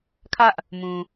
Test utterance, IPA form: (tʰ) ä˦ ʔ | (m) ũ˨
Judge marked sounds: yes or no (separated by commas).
no, yes